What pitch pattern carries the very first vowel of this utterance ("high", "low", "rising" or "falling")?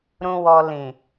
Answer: low